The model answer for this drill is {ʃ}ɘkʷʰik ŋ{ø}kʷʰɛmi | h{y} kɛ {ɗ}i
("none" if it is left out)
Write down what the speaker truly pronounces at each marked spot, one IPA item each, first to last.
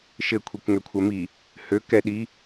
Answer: ʃ, ø, ø, ɗ

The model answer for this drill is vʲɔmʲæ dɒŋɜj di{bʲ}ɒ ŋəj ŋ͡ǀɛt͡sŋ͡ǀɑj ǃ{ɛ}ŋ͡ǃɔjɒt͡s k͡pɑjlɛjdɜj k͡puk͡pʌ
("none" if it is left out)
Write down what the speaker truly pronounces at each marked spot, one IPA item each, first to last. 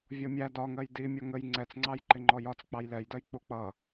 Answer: mʲ, ɪ

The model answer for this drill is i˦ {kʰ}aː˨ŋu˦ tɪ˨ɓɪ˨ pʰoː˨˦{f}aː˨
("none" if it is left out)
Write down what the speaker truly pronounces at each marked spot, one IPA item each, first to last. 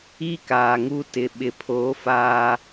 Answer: k, f

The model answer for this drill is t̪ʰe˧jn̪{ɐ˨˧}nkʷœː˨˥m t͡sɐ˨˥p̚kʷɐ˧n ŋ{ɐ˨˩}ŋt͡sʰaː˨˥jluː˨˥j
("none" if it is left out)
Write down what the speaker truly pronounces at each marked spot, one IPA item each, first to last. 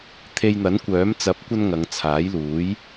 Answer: ɐ˨˥, ɐ˨˧

